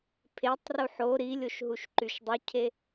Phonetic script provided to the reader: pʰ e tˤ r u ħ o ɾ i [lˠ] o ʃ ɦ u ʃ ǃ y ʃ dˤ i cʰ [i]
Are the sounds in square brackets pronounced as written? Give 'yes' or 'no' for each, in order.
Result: no, no

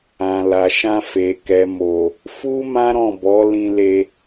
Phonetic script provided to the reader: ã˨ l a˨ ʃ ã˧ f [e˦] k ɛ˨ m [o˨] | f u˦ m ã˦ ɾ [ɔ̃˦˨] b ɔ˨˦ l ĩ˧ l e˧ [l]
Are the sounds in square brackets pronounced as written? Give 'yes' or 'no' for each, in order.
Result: no, yes, yes, no

